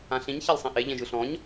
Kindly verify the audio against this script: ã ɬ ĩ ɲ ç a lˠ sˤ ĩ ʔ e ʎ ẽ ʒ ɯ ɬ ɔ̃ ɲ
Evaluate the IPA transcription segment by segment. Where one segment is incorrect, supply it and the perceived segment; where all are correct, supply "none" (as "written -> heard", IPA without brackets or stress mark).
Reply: none